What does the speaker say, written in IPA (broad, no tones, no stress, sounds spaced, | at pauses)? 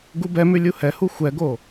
ɡ u b ɛ m ʉ lʲ u h ɛ h u xʷ ɛ ɡ o